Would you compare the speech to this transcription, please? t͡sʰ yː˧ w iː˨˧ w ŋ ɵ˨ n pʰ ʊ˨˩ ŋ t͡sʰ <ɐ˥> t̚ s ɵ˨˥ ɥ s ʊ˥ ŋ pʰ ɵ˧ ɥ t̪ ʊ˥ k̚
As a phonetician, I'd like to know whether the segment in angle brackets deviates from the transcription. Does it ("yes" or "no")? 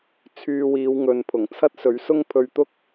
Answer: no